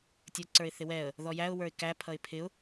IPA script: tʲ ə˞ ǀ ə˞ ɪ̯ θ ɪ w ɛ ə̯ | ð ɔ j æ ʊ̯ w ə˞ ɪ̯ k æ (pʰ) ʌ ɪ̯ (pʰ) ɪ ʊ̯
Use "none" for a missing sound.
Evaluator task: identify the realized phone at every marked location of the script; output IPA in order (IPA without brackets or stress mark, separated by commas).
pʰ, pʰ